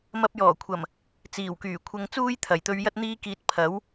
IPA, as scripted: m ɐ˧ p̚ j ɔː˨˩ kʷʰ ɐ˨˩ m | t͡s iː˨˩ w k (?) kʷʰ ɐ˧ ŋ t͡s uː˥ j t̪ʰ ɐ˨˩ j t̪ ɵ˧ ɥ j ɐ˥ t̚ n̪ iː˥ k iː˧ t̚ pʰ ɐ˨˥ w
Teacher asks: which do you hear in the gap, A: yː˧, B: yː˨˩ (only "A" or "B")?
B